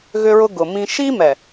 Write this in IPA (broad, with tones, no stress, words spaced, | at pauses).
ɣʏ˦ɹʊ˦ ɡʊ˨mĩ˦ ʃi˦mɛ˨